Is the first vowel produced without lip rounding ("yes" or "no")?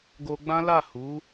no